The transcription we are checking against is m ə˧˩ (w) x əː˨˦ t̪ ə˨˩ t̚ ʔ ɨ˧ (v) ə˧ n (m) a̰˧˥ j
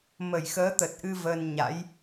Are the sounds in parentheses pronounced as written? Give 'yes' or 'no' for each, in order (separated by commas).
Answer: no, yes, no